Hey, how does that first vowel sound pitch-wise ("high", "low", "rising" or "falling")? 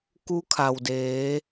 rising